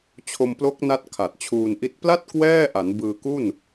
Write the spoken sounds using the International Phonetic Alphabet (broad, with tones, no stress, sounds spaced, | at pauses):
t͡ɕʰ o˧ m p l o˦˥ k̚ n a˦˥ t̚ kʰ a˨˩ t̚ t͡ɕʰ uː˧ n ʔ i˦˥ t̚ p l a˥˩ t̚ k w ɛː˥˩ ʔ a˩˦ n b ɯː˧ k u˥˩ n